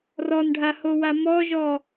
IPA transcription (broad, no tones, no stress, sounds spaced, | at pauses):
r ɔ n ɖʱ a h o w a m ɔ ʒ ɔ